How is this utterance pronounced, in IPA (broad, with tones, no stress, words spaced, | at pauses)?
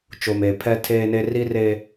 t͡ʃo˨meː˨ pʰɛ˦tʰeː˦ne˦ ri˦re˦